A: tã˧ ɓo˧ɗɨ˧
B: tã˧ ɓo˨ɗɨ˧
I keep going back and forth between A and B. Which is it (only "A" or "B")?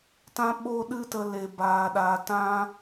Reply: A